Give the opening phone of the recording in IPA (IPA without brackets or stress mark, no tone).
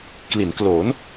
k